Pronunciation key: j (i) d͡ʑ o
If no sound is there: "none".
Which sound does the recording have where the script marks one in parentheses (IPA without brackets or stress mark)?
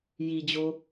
i